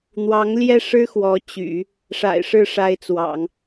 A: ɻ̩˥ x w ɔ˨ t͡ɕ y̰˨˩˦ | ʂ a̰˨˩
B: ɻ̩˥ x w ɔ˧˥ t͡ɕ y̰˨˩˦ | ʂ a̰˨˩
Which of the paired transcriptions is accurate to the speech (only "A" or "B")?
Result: B